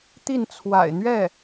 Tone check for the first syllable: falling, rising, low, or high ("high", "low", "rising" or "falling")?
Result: falling